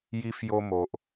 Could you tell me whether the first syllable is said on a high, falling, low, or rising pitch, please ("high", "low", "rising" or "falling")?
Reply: high